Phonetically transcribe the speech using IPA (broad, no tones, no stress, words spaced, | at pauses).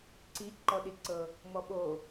ǀi ǃɔɗiǀɤ | mɔɓo